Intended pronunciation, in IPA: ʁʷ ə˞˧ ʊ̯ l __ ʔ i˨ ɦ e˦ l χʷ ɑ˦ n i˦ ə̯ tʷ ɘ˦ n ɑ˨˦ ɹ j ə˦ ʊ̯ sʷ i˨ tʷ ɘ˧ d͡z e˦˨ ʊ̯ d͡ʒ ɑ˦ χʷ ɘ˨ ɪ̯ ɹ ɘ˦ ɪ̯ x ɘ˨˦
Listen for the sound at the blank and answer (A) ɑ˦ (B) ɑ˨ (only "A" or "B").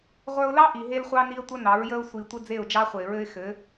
A